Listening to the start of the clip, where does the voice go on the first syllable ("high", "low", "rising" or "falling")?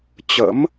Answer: rising